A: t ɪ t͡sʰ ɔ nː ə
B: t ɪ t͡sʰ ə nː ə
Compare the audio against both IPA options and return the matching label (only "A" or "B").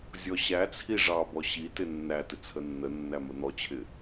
B